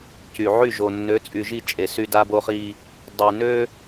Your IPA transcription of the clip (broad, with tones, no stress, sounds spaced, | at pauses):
c y˨ ʕ y˦˨ ʒ o˨ nː ø˨˦ t͡sʼ y˨ ʒ i˦˨ t͡ʃʼ e˨ s y˦ d a˦ b o˦ χ i˦ | dˤ y˨ n ø˦